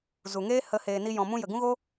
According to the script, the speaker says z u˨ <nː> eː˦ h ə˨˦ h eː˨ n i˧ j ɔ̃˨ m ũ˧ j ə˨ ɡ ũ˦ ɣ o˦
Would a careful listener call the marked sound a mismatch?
yes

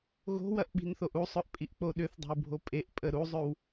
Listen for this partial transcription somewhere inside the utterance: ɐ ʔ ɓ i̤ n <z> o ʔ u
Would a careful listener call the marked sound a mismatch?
yes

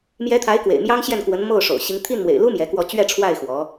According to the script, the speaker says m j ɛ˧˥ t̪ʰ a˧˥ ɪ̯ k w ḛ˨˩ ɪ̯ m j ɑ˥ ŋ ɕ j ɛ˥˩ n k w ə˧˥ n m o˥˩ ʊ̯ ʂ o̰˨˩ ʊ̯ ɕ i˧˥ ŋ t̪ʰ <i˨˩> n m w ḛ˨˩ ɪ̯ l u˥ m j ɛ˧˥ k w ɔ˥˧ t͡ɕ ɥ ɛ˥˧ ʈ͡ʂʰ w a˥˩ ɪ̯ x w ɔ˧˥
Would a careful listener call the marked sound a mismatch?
yes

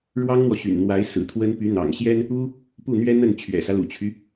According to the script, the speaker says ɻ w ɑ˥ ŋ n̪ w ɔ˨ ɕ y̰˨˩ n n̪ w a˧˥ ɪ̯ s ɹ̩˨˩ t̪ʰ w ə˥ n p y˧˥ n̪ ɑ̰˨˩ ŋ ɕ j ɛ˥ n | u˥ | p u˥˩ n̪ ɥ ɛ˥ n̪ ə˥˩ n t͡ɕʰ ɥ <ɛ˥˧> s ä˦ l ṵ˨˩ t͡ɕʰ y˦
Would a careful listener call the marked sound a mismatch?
yes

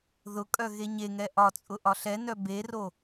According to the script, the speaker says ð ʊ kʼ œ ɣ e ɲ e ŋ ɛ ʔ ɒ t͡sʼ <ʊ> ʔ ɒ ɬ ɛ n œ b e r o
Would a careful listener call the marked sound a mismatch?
no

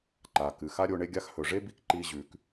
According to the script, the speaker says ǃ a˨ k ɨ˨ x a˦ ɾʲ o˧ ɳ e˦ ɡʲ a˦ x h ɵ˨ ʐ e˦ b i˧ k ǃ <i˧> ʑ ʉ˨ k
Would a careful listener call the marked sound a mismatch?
no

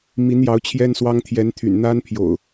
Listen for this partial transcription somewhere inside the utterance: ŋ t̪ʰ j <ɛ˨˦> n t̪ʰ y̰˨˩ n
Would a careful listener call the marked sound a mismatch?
no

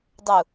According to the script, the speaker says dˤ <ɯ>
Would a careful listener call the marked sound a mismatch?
yes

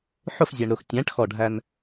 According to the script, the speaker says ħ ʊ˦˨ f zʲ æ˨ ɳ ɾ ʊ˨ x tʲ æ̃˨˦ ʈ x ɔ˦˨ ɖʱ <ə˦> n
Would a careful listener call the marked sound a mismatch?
yes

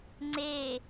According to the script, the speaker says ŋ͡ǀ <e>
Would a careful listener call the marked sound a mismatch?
no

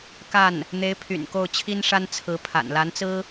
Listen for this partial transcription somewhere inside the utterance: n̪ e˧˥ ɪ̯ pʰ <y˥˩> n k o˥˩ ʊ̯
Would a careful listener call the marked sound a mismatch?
yes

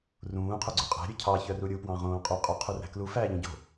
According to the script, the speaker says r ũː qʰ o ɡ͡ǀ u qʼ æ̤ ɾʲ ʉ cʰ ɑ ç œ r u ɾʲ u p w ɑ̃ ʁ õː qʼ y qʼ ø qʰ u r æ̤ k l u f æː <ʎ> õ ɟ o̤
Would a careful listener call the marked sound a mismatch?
no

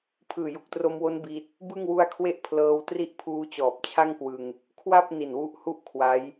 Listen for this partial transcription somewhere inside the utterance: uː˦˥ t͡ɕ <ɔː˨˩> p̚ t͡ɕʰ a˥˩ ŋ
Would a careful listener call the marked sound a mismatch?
no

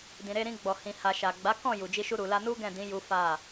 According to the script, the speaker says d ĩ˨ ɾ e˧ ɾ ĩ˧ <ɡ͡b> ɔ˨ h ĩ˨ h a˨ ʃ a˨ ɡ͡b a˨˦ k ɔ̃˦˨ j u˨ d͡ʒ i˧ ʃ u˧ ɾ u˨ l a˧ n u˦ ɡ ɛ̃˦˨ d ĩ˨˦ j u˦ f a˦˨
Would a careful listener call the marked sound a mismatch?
no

